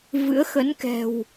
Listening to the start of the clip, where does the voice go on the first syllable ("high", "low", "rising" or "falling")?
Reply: rising